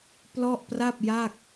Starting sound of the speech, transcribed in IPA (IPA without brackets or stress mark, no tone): p